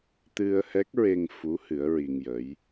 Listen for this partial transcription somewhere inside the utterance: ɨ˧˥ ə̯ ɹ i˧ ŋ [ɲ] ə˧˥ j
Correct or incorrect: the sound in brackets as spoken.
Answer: incorrect: j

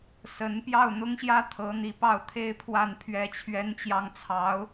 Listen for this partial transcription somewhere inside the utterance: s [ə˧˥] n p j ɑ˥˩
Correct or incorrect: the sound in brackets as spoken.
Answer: correct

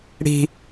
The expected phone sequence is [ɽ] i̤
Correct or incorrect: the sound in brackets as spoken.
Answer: correct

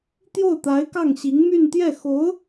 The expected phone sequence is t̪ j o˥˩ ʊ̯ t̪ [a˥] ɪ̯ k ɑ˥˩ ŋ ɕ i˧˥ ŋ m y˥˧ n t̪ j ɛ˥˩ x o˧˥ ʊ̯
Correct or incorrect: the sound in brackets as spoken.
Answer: incorrect: a˧˥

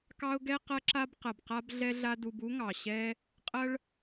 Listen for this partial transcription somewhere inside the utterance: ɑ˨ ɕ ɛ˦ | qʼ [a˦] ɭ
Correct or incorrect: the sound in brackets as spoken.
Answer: incorrect: ɐ˦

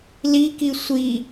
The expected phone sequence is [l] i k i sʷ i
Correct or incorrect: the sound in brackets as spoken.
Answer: correct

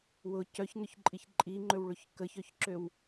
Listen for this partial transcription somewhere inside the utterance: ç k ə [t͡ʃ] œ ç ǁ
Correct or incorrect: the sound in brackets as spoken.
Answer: incorrect: ç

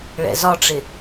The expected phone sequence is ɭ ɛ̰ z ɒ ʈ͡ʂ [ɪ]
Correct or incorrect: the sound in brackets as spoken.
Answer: correct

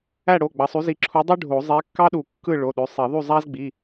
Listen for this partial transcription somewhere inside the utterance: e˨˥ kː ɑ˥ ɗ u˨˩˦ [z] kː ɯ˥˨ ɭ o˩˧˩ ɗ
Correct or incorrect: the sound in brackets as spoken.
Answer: incorrect: none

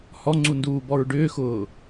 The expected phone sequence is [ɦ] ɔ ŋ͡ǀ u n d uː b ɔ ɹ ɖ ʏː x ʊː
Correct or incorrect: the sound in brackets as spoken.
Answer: incorrect: h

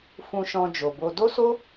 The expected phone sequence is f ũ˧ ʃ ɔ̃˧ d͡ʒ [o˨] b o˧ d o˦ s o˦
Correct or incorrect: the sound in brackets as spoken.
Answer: correct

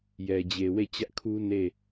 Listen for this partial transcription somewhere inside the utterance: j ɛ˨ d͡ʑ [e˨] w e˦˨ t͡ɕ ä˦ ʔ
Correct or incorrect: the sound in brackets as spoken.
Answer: correct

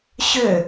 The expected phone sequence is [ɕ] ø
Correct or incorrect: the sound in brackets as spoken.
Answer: correct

